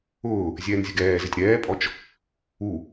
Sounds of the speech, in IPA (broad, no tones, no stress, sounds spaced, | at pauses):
ʊː | zʲ ɛː n zʲ ʊ ɡ ɛː z ɪ tʲ ɾ ɛː pʼ ɔ t͡ʃ | u